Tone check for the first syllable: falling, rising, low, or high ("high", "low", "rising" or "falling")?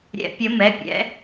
rising